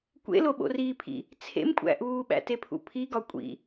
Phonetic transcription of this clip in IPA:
kʷ ḛ l o ɓ o̰ r iː pʰ ḭ | t͡sʰ ḛ m kʷʼ æ̰ ʔ uː ɓ æ̰ t e pʰ ṵ pʰ i ɡ ɒ kʷʼ ḭ

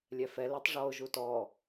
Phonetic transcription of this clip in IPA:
lʲ ɛ f ɛ l i tˤ ʐ ɔ ʊ̯ ʒ u t ɔ

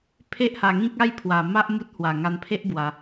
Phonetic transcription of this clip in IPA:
pʰ e˦ ʔ h a˧ ŋ ĩ˦ k̚ a˦ j pʰ w a˧ m a˦ ʔ m u˦ t̚ h w a˧ ŋ a˧ n pʰ e˦ ʔ b w a˧

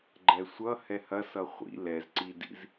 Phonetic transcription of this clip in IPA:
ɡ͡ǃ ɛ sʷ ʌ h ɛ h ɐ s ʌ χʷ ḭ l ɛ z ǀ i d ḭ z

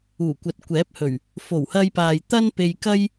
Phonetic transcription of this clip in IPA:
uː˨˩ kʷ ɐ˨ t̚ kʷ ɛː˨˥ p̚ h ɵ˨˩ ɥ | f o˨˩ w h ɐ˧ j p aː˨ j t̪ ɐ˥ n p e˧ j k ɐ˥ j

